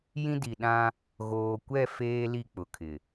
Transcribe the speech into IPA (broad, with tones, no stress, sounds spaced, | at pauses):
j ĩ˦ d i˨ ɗ ã˦ | ɣ oː˨ kʷ ɛ˦˨ f eː˦ l i˦˨ k͡p ʊ˨ kʰ ɪ˨